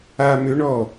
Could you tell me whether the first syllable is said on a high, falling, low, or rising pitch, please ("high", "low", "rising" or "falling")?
low